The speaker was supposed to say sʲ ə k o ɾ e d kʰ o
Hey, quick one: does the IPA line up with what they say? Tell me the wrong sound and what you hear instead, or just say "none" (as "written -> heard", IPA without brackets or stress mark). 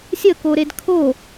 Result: none